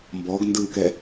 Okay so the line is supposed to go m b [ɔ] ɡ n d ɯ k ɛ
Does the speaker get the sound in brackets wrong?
no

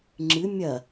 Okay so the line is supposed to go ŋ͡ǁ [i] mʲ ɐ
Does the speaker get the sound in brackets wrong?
yes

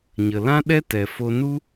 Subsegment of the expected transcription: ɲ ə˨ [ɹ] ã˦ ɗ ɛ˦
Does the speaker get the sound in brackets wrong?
yes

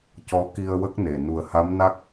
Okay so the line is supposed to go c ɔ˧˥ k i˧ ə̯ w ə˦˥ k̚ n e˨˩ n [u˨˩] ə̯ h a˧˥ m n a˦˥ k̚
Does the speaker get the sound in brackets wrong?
no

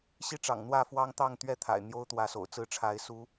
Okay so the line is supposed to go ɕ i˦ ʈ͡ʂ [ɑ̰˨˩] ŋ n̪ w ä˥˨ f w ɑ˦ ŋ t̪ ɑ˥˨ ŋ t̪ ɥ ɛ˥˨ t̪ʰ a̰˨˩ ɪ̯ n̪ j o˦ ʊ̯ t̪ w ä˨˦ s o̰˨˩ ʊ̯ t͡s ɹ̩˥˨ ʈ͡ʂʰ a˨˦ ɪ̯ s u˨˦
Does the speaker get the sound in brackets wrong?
no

